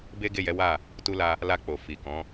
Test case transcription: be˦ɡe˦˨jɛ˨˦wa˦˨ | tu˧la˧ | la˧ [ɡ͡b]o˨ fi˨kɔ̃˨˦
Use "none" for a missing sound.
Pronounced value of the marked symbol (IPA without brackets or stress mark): k͡p